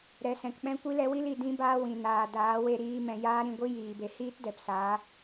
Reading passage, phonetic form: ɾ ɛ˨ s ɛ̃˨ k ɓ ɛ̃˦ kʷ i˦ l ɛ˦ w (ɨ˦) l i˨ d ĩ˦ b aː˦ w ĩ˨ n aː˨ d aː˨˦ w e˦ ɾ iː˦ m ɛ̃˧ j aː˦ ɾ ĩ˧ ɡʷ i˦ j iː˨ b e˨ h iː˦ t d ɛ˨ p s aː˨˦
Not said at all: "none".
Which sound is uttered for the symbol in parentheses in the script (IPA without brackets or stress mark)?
i˦